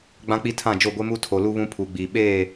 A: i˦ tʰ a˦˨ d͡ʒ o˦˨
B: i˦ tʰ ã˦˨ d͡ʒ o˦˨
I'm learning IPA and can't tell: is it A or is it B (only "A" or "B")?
B